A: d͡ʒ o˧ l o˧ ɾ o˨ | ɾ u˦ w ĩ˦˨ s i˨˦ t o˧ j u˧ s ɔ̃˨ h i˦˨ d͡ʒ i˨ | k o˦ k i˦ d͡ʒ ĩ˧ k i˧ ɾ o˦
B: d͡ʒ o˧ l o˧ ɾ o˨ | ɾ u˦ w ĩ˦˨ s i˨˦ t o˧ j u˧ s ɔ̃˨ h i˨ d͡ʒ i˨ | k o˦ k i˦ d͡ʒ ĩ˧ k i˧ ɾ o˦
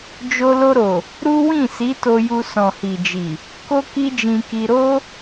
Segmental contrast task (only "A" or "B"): B